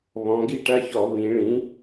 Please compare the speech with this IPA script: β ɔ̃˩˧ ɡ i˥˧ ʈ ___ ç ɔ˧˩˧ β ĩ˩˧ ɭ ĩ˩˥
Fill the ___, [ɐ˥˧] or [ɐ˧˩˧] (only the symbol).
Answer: ɐ˥˧